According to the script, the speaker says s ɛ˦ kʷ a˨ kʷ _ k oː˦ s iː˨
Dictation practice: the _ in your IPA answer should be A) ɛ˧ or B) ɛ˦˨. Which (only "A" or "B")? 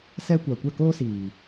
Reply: B